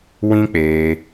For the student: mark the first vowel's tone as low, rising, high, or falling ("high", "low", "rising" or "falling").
high